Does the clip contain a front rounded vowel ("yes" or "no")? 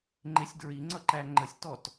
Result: no